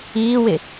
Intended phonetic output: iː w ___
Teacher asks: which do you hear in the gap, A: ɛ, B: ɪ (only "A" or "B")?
B